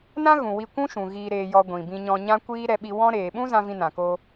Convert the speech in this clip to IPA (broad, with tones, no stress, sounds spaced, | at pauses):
n ã˦ ɣ ũ˨ w i˧ kʷ ũ˦ ʃ ũ˨ ɣ iː˧ ɾ eː˧ j ɔ˧ ɡʷ ĩ˨ b ĩ˧ ɲ ɔ̃˧ ɲ ã˦ kʷ iː˦ ɾ ɛ˧ ɓ i˧ w ɔ̃˦ ɾ eː˨ ɓ ũ˦ z ã˧ v ĩ˧ n ã˨ k o˧